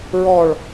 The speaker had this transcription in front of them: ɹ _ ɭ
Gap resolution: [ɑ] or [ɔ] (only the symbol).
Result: ɔ